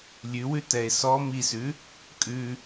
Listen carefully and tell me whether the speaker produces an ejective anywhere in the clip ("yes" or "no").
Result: yes